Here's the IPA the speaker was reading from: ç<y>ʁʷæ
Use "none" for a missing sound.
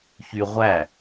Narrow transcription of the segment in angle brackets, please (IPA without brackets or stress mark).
y